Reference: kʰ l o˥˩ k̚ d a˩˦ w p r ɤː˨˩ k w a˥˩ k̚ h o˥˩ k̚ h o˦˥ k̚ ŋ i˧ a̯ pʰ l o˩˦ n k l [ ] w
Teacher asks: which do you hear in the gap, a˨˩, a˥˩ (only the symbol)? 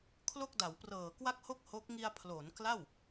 a˥˩